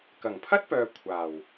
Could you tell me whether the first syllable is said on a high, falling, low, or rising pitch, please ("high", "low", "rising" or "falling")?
low